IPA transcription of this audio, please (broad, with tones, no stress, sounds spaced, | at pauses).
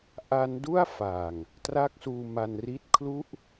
ʔ a˦˥ n d u˥˩ a̯ f a˨˩ ŋ | t r a˥˩ k̚ s uː˧ m a˧ n r i˥˩ t̚ kʰ l u˥˩ ʔ